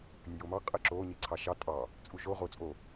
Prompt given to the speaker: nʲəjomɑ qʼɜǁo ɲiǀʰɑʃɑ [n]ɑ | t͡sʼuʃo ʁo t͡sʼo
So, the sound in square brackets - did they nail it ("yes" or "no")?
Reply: no